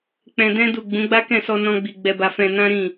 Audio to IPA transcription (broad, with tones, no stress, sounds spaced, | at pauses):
k͡p ɛ̃˧ d ɛ̃˦ d u˦˨ ɡ͡b ũ˨˦ ɡ͡b a˦ k ɛ̃˦˨ s ɔ˧ n ɔ̃˦ ɡ͡b i˧ ɡ͡b ɛ˧ b a˧ f ɛ̃˧ n ã˦ ɾ ĩ˦˨